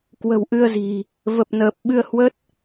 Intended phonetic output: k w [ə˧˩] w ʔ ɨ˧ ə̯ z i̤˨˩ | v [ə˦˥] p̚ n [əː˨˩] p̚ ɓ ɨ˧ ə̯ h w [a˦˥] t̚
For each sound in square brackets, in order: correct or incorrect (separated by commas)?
incorrect, incorrect, correct, incorrect